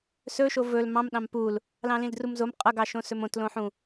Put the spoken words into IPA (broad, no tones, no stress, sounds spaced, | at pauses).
s ɵ ʃ o v ɵ l m ɑ̃ m ɗ ɑ̃ m p u l | l ɑ̃ l ĩ l d r u m z o m qʼ ʌ ɡ ɑ ʃ õ s ɵ m õ t l õ ħ ũ